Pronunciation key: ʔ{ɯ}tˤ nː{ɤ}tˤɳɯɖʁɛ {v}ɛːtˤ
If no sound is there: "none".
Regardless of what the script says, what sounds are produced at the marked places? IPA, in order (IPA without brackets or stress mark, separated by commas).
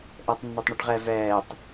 ɤ, o, v